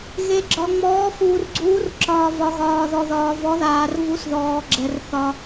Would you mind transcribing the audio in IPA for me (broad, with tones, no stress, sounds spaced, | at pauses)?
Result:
ɣ e˨ ɡ͡ǁ ɒ˨ ŋ͡m ɔː˨˥ f uː˨ r ɡ͡ǀ uː˨˥ r ǁ ɒː˨ v ɒ˨ ɣ ɒː˨ ð ɔ˨ ð ɒː˨ v ɔ˨˥ ð aː˨ r v u˨˥ s ð ɔː˨ ɡ͡ǁ ɛ˨ r θ ɒ˨